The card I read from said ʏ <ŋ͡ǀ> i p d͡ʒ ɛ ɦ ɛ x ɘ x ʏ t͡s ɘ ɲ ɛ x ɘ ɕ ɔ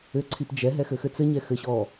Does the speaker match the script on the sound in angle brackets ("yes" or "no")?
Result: no